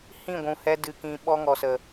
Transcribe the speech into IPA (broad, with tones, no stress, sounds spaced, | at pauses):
h ĩ˦˨ ɡʷ ũ˨ h ɛ˧ d ɨ˧ k ĩ˧ ɓ ɔ˧ ŋ ɔ˨ s ə˨